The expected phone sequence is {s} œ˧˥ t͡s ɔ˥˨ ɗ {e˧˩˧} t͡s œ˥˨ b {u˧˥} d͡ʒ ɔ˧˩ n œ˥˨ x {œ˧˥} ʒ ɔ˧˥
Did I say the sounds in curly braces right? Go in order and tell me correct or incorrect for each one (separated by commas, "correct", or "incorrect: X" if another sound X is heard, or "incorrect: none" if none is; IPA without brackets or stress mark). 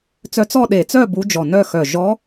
incorrect: t͡s, correct, correct, incorrect: œ˧˩